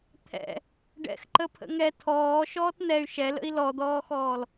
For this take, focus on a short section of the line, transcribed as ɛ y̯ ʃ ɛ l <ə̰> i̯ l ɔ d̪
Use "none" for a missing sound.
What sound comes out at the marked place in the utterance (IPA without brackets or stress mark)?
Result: ə̰